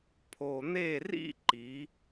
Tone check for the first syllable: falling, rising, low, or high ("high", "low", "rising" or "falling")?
low